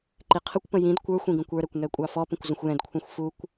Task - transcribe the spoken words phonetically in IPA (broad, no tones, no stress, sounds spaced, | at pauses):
ǃ i qʰ ə kʷ p ə̃ j ĩ d kʷ ə˞ xʷ ĩ ɡ ə̃ kʷ ə˞ ɾ ɛ kʷ ŋ ɛ kʷʼ ɑ f ɔ p ə̃ kʷ z ə̃ xʷ j ɛ̃ d kʷʰ ɑ̃ xʷ f u kʷ